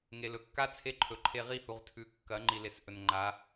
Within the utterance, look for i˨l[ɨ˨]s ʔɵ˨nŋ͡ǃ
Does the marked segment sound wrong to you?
yes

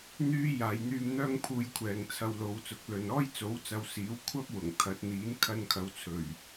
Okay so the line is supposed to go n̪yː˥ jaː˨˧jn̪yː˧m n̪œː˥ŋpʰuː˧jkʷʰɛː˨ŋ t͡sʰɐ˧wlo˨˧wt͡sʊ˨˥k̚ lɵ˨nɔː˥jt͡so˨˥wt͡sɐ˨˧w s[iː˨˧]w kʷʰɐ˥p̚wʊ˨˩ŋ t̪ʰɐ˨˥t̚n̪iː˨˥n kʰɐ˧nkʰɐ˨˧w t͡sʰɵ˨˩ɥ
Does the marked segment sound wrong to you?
yes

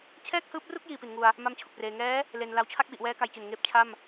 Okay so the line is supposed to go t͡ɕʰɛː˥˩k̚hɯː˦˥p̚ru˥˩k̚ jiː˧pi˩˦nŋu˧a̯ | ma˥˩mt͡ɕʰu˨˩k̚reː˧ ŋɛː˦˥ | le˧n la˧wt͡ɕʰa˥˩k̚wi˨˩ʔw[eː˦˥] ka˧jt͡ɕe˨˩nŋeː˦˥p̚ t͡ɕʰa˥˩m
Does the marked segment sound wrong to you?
yes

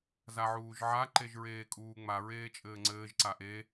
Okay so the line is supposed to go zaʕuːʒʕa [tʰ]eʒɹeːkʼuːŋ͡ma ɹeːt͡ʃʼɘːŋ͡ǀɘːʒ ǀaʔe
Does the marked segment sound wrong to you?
yes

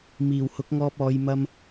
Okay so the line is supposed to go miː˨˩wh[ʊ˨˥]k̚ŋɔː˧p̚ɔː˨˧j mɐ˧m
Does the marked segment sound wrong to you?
no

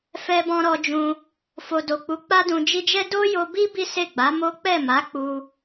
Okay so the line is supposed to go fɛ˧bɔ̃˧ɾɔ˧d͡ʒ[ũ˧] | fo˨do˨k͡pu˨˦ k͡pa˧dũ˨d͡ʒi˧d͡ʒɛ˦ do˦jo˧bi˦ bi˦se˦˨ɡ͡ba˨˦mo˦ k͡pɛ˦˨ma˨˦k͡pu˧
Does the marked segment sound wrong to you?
no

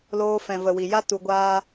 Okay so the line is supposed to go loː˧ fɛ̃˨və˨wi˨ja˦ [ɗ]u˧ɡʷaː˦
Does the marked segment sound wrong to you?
yes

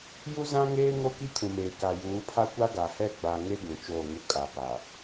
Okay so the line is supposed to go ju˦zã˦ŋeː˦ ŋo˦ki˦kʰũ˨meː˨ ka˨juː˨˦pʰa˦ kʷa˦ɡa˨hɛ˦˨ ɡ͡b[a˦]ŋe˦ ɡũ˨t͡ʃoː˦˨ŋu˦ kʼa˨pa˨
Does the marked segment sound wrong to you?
yes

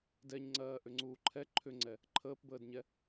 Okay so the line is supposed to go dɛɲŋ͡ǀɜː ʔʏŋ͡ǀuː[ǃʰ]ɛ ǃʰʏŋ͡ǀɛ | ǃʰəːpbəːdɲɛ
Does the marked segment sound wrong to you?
no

